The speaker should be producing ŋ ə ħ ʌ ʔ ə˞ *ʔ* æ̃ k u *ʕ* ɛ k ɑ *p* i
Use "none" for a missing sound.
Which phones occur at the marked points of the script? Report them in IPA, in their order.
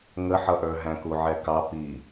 ɦ, ʕ, p

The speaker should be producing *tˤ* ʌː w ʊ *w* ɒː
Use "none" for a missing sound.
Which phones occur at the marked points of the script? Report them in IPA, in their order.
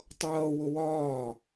tˤ, w

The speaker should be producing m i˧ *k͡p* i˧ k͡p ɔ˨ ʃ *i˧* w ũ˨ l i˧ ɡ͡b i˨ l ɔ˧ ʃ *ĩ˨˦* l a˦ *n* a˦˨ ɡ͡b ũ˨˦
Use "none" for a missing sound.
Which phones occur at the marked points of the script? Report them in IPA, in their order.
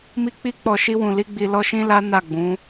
k͡p, i˧, ĩ˧, n

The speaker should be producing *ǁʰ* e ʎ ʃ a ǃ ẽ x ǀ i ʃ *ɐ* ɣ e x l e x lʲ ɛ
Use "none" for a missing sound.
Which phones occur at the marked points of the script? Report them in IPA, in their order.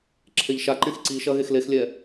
ǁʰ, ɐ

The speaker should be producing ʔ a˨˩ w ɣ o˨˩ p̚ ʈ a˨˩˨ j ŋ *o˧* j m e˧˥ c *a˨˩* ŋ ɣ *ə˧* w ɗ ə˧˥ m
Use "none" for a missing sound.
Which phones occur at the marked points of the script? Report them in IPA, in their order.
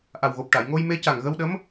o˧, a˨˩, ə˧

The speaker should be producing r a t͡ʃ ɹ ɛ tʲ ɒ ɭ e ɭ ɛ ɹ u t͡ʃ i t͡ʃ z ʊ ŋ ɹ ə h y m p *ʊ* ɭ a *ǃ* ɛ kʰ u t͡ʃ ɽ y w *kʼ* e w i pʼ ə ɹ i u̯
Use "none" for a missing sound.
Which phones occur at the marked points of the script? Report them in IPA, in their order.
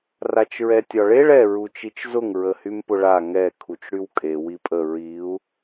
ʊ, ŋ, kʼ

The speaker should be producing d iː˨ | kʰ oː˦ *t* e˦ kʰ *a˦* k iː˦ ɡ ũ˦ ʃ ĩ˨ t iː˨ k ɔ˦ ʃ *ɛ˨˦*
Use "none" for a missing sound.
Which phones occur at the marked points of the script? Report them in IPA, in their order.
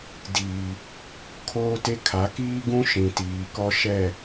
t, a˨˦, ɛ˦˨

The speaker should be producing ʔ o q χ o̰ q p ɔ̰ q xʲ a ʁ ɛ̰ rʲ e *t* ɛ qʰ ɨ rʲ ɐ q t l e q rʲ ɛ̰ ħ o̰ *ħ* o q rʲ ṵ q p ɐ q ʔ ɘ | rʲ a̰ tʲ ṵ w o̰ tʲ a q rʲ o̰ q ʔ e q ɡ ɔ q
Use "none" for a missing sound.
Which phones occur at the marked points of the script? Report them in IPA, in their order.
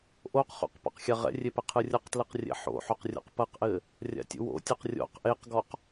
p, ħ

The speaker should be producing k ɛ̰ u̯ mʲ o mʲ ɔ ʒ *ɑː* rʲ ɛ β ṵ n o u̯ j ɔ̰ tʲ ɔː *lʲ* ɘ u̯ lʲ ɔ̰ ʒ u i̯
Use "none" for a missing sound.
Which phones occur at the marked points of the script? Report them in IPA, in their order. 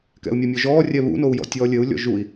ɔː, lʲ

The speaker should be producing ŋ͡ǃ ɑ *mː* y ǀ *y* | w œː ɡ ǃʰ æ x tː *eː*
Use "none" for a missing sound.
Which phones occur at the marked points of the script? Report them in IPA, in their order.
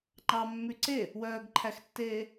mː, e, eː

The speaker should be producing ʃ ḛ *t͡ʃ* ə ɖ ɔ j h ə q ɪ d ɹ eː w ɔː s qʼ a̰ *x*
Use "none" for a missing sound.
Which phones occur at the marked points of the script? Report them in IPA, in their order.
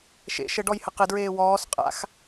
ʃ, x

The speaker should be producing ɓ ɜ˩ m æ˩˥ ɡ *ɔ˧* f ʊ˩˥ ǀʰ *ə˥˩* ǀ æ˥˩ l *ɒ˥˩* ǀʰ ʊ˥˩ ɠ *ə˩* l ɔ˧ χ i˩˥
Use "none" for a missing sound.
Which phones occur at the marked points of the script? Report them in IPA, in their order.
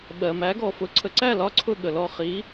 ɔ˩, ə˩˥, ɒ˥˩, ə˩

